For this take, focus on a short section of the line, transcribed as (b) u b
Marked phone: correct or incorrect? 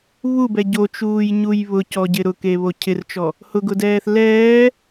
incorrect